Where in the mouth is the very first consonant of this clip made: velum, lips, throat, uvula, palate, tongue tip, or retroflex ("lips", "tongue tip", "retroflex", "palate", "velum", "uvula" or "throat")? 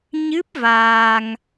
palate